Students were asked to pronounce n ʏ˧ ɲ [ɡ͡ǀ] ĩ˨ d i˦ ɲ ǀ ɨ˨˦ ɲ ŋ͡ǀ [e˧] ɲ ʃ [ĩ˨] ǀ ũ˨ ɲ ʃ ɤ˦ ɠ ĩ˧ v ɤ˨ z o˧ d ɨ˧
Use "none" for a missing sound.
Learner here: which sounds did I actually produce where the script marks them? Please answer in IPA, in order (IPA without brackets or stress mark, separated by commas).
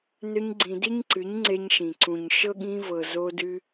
ɡ͡ǀ, e˧, ĩ˨